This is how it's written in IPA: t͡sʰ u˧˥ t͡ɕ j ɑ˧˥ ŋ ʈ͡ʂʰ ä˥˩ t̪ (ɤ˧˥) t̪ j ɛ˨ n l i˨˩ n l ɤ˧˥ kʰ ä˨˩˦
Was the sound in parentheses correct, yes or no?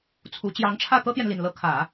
no